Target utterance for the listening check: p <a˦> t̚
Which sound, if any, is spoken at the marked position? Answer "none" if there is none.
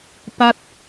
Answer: a˦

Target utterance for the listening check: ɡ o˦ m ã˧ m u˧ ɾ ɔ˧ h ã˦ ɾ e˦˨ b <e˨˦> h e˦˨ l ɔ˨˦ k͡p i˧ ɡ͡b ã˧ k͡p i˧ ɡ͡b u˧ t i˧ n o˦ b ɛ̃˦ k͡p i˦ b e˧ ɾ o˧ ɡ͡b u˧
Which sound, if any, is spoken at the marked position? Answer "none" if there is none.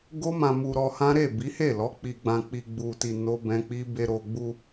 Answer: i˨˦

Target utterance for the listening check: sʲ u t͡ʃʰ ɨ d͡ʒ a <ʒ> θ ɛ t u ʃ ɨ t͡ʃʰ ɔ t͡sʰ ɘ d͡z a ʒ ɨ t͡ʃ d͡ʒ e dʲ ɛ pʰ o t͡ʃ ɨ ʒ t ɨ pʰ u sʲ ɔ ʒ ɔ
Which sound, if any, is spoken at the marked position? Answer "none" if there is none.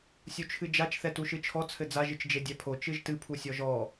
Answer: t͡ʃ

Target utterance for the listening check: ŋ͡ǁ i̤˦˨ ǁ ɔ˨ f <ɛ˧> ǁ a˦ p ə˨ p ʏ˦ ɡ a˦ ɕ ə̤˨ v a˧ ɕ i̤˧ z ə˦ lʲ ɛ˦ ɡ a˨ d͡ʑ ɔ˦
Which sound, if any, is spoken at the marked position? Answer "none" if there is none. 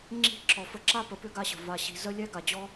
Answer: ə˧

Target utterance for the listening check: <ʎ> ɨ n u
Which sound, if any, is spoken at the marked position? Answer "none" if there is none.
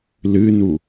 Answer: l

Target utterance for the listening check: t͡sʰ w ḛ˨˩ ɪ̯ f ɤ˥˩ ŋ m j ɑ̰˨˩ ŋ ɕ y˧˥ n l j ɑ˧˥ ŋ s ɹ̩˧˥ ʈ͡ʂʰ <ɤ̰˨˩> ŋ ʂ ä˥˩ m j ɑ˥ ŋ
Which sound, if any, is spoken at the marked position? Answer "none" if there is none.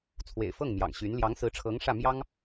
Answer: ɤ˧˥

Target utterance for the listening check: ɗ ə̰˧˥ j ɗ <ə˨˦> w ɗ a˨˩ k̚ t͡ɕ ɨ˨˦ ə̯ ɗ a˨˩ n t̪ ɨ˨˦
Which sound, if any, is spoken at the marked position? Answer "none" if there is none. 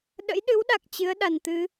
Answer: ɨ˨˦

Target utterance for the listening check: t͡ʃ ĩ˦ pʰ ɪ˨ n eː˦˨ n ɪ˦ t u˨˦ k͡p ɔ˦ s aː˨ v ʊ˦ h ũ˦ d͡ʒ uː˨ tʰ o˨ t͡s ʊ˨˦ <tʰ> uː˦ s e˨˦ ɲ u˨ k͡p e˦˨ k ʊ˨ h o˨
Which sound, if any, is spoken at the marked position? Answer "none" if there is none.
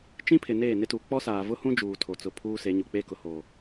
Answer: pʰ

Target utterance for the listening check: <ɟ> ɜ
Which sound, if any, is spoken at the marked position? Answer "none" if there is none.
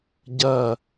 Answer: ɟ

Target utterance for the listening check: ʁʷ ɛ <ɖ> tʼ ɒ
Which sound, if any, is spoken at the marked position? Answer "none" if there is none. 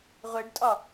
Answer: ɖ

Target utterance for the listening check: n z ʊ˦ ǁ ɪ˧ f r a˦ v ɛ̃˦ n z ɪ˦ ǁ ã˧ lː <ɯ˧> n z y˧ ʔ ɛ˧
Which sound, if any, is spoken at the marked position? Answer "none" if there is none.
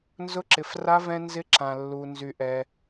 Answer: u˧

